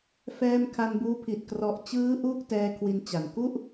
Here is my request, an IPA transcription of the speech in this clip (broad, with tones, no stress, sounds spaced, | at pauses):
f ɛː˧ m kʰ a˧ n b uː˦˥ pʰ i˨˩ t̚ k r ɔ˨˩ ʔ t͡ɕ ɯː˦˥ ʔ uː˥˩ k̚ t ɛː˧ kʰ w i˧ n t͡ɕ a˨˩ n k u˥˩ ʔ